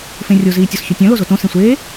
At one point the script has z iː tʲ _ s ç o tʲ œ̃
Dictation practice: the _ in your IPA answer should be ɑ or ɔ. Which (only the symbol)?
ɔ